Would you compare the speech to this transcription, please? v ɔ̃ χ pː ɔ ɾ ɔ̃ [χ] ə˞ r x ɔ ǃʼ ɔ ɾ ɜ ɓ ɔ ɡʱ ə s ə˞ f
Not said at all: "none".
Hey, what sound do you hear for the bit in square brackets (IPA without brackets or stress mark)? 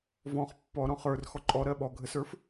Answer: χ